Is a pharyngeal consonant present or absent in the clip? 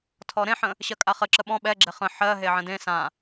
present